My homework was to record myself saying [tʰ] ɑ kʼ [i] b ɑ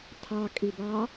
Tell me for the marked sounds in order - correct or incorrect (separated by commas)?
correct, correct